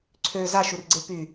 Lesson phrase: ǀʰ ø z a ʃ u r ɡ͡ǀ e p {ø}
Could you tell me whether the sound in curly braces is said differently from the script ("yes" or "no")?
yes